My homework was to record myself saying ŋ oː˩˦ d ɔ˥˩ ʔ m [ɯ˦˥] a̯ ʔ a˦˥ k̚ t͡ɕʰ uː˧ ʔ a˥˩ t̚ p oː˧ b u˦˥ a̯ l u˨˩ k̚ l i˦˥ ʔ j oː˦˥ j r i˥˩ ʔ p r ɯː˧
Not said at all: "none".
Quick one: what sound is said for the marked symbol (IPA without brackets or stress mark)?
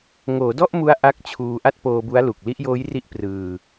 u˦˥